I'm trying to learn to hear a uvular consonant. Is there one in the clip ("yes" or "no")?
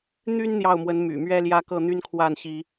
no